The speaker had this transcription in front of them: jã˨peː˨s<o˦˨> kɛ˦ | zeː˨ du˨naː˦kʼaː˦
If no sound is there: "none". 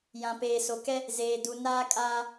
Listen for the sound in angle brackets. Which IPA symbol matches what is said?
o˨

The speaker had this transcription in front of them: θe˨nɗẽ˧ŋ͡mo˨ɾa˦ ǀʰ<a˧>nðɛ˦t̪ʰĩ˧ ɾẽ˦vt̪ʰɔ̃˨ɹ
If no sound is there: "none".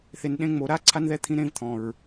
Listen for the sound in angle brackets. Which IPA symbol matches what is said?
a˦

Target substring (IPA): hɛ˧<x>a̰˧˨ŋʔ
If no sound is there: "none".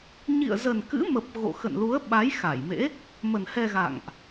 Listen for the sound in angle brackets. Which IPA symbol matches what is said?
ɣ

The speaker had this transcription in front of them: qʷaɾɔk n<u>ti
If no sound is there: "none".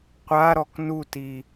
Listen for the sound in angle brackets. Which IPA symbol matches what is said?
u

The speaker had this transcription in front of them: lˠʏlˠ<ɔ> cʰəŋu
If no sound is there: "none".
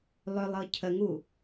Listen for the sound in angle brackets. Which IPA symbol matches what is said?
ɤ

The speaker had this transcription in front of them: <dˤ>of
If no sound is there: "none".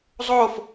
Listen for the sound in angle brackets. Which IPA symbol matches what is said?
zˤ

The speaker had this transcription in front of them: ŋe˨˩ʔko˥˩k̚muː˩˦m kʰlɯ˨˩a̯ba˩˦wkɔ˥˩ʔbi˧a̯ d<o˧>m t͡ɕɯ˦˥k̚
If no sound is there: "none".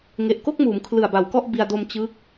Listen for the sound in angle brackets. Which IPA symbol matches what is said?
o˧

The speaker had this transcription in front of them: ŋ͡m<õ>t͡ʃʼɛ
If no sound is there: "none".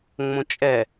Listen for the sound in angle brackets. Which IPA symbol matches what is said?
õ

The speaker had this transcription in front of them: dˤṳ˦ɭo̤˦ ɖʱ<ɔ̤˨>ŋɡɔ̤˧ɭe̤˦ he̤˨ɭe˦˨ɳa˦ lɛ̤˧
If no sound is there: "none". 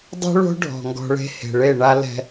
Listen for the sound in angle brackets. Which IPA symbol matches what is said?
ɔ̤˨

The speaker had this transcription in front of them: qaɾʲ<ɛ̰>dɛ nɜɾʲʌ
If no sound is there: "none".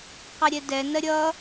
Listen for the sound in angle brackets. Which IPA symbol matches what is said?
ɛ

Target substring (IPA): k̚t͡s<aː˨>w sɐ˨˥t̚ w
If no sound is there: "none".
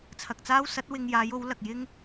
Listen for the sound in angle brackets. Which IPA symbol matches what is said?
aː˥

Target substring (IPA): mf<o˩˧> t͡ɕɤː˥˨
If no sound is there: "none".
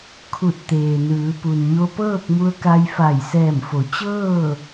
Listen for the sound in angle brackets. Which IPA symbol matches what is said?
o˩˧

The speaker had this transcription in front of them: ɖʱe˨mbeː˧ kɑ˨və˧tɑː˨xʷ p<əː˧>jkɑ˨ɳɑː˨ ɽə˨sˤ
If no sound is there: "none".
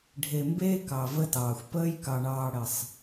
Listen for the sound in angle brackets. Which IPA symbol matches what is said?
əː˧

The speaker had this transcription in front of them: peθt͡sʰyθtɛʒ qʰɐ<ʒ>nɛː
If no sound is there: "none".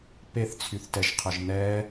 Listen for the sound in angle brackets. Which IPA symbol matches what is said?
ʒ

